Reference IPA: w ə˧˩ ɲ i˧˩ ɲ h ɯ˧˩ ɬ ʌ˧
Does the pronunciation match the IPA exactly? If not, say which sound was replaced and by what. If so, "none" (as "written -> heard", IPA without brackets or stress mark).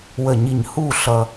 ɯ˧˩ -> u˧˩